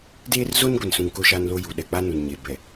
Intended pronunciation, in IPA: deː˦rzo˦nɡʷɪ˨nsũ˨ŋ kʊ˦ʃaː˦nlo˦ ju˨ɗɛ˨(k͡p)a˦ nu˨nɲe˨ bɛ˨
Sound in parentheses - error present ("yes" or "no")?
no